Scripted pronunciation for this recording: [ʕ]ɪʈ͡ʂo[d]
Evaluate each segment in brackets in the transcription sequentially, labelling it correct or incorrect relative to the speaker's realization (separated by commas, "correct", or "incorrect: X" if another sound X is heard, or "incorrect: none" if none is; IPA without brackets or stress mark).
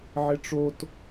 correct, incorrect: t